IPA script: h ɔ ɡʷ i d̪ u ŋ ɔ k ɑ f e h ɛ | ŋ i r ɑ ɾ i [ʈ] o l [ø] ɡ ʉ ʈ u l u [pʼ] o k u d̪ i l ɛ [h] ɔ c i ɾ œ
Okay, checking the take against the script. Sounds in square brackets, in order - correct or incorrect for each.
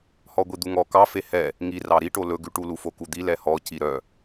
correct, incorrect: ɵ, incorrect: f, correct

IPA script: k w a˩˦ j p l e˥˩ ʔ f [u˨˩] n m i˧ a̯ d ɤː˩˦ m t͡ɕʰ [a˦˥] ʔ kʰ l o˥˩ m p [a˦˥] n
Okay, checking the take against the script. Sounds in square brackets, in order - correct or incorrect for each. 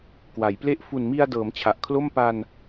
correct, incorrect: a˨˩, incorrect: a˧

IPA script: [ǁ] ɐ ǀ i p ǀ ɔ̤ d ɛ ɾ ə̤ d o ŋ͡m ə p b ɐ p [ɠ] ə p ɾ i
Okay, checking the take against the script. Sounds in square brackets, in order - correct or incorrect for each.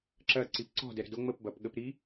correct, correct

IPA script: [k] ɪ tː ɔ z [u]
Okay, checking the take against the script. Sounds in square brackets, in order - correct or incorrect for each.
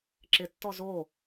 incorrect: ǁ, incorrect: o

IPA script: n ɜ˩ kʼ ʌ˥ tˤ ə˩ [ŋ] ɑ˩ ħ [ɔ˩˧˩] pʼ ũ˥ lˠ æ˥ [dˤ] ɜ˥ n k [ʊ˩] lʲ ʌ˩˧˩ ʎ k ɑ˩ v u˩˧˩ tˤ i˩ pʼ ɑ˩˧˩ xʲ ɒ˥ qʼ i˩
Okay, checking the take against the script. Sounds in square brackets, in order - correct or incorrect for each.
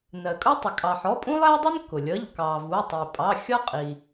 incorrect: kʼ, correct, correct, correct

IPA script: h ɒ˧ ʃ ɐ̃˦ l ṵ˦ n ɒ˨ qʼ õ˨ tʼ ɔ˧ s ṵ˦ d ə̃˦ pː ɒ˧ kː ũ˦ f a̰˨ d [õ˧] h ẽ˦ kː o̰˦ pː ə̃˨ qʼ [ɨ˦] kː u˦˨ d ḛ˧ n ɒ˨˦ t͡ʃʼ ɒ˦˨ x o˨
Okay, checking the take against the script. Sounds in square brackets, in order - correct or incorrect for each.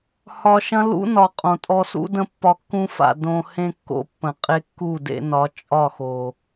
correct, incorrect: e˦

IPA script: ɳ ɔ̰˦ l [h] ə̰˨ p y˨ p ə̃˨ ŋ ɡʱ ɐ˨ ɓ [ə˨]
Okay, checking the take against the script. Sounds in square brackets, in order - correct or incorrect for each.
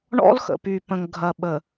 incorrect: x, correct

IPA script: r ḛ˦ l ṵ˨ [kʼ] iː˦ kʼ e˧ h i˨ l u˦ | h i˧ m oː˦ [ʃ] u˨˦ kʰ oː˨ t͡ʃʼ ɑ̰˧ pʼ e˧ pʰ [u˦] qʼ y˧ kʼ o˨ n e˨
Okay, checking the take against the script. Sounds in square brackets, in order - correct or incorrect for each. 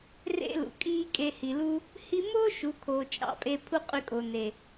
correct, correct, correct

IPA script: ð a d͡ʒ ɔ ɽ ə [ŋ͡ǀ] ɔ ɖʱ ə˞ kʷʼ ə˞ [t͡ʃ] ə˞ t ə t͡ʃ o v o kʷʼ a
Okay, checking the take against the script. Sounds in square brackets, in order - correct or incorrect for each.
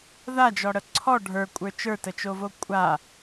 incorrect: ǀʰ, correct

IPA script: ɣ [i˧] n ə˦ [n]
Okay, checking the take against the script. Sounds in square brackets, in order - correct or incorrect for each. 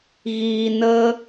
incorrect: iː˧, incorrect: none

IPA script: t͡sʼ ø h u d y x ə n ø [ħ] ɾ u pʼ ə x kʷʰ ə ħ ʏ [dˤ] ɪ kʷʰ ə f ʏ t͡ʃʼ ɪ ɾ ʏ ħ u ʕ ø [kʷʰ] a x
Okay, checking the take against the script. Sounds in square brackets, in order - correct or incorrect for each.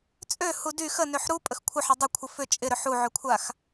correct, correct, correct

